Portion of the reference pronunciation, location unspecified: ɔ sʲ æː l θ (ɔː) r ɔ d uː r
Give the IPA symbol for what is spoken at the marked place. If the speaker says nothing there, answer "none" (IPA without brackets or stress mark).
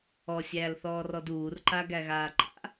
ɔː